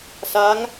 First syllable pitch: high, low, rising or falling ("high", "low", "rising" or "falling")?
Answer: rising